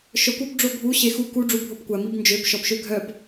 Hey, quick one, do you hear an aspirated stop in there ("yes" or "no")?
no